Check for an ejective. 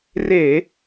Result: absent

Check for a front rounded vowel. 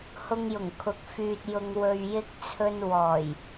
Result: present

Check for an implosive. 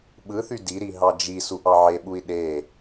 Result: present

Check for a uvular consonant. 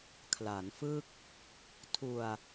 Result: absent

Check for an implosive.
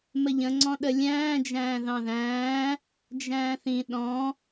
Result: present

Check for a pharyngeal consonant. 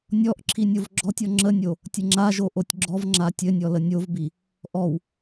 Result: absent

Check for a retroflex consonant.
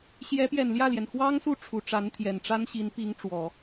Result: present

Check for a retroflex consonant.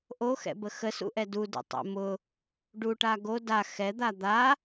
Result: present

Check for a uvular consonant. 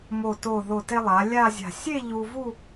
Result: absent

